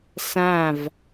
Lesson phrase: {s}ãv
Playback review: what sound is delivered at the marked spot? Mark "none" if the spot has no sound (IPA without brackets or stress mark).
s